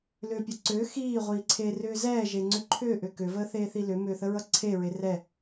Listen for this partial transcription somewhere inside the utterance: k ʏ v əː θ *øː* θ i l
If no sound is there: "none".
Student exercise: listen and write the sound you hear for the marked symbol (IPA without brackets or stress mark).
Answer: eː